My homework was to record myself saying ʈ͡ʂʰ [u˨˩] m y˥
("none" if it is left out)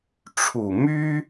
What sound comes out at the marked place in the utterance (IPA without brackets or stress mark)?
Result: u˨˩